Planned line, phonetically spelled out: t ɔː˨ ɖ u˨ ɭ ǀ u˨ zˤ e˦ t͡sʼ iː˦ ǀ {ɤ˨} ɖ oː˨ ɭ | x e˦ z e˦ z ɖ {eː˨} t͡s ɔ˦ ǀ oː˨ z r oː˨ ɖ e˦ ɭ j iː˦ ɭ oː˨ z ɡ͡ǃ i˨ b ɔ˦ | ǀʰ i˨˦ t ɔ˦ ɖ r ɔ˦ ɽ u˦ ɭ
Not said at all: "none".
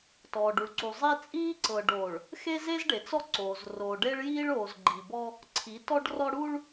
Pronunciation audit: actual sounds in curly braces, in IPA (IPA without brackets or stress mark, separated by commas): ɤ˨, e˨